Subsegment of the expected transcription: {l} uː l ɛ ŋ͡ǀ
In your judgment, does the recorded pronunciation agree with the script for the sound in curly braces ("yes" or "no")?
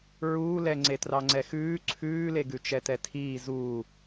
no